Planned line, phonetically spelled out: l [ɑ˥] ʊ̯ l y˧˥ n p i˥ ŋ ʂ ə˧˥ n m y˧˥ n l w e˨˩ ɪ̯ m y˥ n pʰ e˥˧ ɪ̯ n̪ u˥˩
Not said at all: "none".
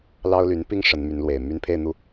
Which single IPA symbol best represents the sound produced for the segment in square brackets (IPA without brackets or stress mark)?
ɑ˥